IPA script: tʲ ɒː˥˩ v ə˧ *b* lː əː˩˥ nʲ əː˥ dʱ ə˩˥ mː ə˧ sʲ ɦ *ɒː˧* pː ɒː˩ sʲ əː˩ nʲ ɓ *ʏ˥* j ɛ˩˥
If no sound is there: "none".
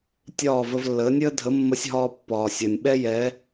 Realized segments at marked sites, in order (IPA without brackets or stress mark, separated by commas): v, ɒː˧, ɛ˥